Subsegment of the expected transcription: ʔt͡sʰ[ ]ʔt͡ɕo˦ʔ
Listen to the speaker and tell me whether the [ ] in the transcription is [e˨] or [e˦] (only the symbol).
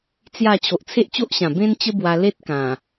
e˦